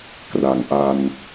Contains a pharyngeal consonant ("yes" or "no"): no